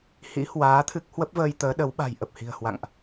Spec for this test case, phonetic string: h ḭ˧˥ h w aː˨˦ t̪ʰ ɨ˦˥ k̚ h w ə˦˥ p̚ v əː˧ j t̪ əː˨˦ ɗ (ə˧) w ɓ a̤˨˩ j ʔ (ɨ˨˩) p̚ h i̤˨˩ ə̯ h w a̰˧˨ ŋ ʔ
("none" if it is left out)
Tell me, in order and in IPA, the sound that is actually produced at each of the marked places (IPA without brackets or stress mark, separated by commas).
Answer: ə˨˦, ə˨˩